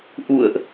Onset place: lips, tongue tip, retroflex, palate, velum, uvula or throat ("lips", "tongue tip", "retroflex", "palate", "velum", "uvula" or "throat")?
throat